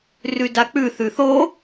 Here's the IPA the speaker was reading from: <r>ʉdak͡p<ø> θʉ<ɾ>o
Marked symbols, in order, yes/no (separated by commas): yes, no, no